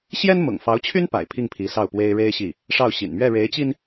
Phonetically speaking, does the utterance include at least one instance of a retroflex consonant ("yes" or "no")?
yes